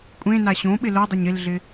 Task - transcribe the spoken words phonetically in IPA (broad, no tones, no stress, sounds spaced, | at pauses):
kʷʼ ẽ n a ɕ õ ɓ ɪ l o dˤ ɪ ɲ ɪ l ɮ ɪ